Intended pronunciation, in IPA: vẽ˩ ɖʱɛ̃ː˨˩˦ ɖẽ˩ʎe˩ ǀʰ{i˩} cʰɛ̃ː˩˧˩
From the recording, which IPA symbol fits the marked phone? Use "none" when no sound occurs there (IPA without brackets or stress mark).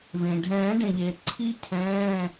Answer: i˧